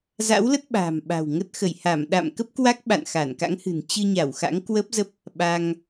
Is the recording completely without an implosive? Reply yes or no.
no